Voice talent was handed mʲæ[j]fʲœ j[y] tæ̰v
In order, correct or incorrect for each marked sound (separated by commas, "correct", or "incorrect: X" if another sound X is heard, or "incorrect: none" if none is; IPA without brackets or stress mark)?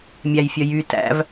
correct, correct